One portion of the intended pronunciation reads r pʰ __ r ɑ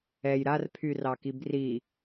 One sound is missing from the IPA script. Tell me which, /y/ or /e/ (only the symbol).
y